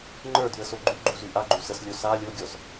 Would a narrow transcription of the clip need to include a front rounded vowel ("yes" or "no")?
yes